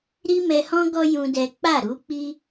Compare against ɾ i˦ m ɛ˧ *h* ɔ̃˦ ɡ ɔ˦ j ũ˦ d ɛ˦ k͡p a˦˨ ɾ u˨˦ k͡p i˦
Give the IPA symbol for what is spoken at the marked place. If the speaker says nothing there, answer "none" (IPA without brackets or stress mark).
h